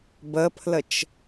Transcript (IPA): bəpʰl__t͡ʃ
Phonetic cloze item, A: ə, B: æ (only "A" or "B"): A